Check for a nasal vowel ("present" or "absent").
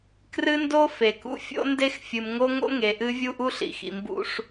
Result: absent